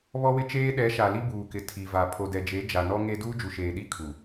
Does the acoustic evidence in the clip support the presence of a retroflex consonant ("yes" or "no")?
no